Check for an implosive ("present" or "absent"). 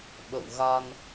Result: present